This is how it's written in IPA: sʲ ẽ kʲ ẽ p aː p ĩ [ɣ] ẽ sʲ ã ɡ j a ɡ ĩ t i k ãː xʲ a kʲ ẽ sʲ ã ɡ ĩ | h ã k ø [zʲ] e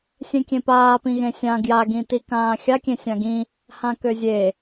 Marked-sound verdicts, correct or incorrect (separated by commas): correct, correct